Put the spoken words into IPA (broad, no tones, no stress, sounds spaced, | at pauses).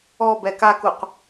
ɔ b ɛ k a k u q